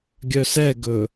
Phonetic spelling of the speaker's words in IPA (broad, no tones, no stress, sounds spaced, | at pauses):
ɡʲ œ s ɛ ɡ ɵ